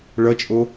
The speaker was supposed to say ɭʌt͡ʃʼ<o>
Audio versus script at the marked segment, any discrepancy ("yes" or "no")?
no